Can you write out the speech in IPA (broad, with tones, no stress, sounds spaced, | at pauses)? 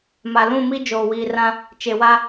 m a˨ l ũ˦˨ m i˦ d͡ʒ oː˨ w iː˨ r ã˦ | t͡ʃ e˨ w a˦